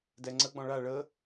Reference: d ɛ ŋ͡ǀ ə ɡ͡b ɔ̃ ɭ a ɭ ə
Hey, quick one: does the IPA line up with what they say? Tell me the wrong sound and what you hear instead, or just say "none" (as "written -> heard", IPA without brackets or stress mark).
none